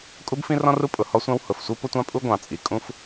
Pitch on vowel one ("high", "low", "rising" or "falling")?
high